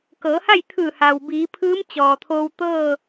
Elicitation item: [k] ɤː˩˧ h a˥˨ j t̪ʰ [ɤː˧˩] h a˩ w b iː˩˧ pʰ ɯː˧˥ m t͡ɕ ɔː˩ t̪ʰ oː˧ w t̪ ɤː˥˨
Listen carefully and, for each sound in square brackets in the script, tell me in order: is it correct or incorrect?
correct, incorrect: ɯː˧˩

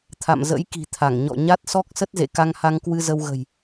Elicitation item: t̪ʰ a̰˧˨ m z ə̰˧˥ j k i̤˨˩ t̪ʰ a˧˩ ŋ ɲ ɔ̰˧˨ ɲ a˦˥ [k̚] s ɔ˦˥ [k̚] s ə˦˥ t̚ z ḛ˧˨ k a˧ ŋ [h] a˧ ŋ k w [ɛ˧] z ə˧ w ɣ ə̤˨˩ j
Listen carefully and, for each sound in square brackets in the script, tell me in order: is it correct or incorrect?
incorrect: t̚, correct, correct, incorrect: ɨ˧

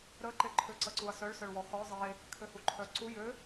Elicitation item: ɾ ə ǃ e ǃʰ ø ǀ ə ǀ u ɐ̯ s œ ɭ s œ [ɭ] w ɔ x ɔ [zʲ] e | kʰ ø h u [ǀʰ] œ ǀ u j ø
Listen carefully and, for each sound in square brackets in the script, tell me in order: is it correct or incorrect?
correct, incorrect: zˤ, incorrect: ǃʰ

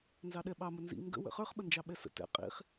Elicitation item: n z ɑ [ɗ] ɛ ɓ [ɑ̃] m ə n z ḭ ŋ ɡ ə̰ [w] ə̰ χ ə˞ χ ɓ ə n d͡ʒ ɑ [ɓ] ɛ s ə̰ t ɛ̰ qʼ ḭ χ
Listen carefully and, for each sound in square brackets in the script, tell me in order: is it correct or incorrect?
correct, incorrect: ɑ, correct, correct

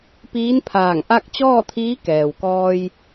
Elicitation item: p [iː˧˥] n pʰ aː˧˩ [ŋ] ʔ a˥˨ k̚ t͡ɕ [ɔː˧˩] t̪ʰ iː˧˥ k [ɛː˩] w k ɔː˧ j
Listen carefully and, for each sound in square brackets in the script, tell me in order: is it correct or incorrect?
correct, correct, incorrect: ɔː˥˨, correct

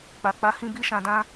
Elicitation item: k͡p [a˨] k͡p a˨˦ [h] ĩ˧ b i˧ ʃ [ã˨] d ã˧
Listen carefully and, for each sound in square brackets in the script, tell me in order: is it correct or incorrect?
correct, correct, correct

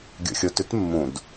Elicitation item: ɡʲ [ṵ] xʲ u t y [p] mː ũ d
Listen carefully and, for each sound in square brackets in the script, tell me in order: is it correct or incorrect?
correct, incorrect: t

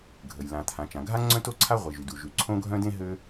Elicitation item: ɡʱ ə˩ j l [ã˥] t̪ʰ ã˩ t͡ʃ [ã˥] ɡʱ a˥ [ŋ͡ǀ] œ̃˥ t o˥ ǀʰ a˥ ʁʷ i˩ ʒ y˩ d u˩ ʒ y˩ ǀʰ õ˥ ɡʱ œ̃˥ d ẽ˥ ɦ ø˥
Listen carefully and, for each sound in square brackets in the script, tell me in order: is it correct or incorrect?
incorrect: ã˩, incorrect: ã˩, correct

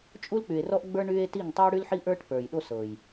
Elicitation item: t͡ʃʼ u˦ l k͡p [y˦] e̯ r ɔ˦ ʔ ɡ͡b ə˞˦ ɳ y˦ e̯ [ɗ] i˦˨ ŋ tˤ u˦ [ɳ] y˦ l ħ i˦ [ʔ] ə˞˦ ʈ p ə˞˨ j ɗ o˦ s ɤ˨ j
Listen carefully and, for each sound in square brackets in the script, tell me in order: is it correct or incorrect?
incorrect: y˨, incorrect: t, incorrect: ɽ, correct

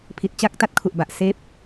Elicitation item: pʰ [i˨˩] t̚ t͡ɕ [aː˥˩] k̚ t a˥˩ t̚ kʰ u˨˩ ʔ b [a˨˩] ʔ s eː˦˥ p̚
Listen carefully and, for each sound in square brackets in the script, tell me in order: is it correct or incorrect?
correct, correct, correct

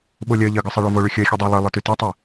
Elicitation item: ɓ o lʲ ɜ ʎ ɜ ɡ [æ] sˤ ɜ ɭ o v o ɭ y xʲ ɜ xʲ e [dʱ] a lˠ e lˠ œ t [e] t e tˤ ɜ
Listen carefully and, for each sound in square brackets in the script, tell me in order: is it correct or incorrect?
incorrect: œ, incorrect: dˤ, incorrect: y

